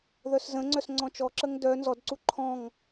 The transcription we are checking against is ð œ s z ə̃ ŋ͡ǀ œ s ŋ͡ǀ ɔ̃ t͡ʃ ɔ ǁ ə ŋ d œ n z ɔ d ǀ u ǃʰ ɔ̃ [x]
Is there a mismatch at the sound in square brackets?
yes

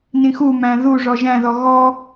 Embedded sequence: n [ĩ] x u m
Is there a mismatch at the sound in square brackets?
no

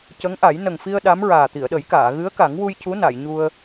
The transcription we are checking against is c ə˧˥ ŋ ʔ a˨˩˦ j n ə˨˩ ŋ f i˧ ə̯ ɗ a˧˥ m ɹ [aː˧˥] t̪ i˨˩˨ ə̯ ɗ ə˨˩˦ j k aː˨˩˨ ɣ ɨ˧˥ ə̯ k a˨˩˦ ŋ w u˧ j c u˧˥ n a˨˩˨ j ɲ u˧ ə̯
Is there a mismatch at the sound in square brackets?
yes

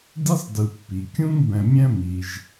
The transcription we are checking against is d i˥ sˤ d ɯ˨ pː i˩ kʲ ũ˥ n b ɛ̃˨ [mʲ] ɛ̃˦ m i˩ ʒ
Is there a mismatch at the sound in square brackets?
no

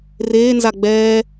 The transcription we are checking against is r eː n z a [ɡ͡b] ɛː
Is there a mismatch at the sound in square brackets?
no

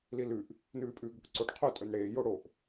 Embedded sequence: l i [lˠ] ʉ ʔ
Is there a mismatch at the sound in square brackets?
yes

